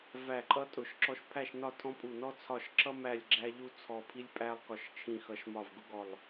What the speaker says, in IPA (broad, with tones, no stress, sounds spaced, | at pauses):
v æ˦˨ ǃʼ ʌ˥ tʼ ʊ˦˨ ʃ ǁ ɔ˥ ʃ pʰ æ˦˨ ʃ n ɒ˦˨ tʰ ɔ̃˥ pʼ u˦˨ n ɔ˥ t͡sʰ ɒ˦˨ ʃ ǁ ʌ˥ m æ˦˨ lʲ ɡ͡ǁ æ˥ ʎ u˥ t͡sʰ ɔ˦˨ pʰ i˥ lʲ pʼ æ˥ lˠ k ɒ˦˨ ʃ t͡ʃʰ ĩ˦˨ x ʌ˦˨ ʃ m ɒ˦˨ v ɡ ʊ˥ ɡ ɔ˦˨ lˠ